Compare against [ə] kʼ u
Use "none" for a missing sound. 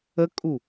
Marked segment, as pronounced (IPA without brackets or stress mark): ə